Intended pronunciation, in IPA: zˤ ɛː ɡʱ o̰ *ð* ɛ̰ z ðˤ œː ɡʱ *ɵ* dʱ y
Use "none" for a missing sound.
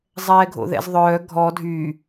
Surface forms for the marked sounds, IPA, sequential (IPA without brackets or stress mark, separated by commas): ð, ɔ